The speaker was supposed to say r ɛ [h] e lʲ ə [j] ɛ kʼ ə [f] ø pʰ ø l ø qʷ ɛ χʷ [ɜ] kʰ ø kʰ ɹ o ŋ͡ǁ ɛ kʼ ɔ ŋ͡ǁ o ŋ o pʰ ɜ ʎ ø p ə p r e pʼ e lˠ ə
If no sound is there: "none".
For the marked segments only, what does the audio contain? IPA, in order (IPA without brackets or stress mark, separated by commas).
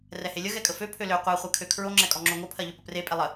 h, ɣ, f, ɜ